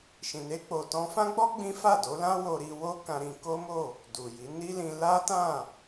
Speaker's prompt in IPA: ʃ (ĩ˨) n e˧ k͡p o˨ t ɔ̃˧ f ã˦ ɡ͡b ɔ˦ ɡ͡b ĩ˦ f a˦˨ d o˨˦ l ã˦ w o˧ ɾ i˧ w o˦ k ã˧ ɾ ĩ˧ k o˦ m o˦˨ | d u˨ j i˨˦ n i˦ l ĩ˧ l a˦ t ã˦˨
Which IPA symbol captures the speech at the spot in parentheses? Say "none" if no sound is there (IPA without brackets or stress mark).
ĩ˨